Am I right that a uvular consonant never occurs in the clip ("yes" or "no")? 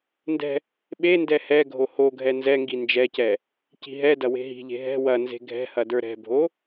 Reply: yes